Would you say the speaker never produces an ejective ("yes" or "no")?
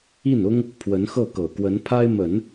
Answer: yes